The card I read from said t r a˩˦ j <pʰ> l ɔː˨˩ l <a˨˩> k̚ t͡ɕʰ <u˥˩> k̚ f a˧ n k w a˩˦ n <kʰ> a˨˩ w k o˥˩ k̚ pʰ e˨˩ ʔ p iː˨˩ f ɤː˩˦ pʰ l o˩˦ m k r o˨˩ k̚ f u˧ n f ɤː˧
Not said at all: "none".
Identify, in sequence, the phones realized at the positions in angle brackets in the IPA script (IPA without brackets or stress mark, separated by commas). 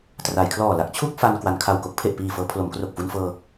kʰ, a˦˥, u˥˩, kʰ